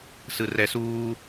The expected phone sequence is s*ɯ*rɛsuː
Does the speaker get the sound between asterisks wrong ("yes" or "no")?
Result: no